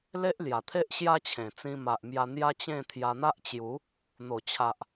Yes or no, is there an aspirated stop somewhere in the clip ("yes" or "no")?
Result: yes